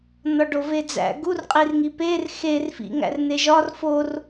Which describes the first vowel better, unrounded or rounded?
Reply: rounded